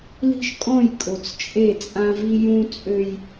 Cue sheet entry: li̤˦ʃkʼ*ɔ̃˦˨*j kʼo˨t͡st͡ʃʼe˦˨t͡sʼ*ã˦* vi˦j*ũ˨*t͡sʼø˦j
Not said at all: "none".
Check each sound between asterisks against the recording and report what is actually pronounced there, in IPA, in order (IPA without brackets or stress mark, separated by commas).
ɔ̃˦˨, ã˦, ũ˦